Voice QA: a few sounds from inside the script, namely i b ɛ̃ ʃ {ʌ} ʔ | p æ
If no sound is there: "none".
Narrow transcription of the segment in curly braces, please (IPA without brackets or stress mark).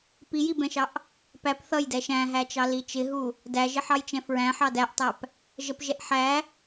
ɑ